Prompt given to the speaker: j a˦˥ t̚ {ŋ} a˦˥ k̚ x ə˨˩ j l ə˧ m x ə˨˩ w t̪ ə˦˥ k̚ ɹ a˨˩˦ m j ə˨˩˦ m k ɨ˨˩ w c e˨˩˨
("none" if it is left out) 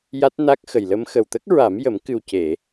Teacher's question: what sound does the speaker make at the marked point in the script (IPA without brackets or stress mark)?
n